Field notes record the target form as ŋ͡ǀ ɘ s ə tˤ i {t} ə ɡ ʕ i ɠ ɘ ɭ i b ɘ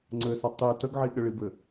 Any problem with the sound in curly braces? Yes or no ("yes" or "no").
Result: no